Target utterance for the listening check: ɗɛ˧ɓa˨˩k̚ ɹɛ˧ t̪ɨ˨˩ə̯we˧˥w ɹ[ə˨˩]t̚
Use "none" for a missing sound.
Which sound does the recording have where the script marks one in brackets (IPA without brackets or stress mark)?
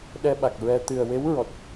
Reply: ɔ˨˩